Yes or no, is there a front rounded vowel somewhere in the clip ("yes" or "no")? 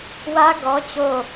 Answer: no